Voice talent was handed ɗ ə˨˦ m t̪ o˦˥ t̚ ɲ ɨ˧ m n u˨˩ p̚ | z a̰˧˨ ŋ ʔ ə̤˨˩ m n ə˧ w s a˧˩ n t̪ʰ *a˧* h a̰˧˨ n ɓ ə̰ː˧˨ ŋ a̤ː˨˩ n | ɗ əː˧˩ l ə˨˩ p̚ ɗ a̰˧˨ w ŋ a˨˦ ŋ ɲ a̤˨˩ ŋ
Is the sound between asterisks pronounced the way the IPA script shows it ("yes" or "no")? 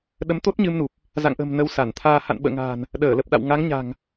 no